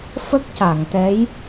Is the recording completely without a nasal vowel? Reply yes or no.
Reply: yes